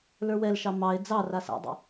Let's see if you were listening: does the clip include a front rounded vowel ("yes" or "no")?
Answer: no